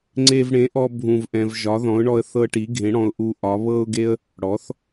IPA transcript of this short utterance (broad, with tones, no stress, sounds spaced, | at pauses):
ŋ͡ǀ e˧ v ɽ ẽ˩˥ ʔ ɔ˧ bʱ ũ˧ v ʔ ɛ̃˧ v ʒ ɒ˩˥ ð ɔ̃˩˥ ʊ̯ ɳ ɔ˧ ə̯ θ ɤ˧ ʈ i˩˥ ɡʱ ẽ˩˥ ɽ ɔ̃˧ ʊ̯ ʔ u˧ ʔ ɒ˩˥ β ɤ˧ ʊ̯ ɡ e˧ ə̯ | ɽ ɔ˩˥ θ